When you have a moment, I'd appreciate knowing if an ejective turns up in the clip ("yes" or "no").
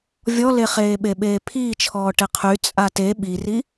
yes